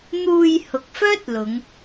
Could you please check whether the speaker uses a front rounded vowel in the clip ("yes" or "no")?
yes